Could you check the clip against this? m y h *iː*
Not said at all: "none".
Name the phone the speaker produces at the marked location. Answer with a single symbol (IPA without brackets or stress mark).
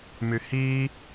iː